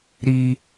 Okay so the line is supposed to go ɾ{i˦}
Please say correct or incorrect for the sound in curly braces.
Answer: correct